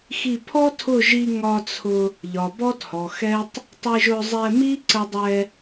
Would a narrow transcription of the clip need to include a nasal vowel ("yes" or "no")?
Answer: no